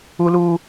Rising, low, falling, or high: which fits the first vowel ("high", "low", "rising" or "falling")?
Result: high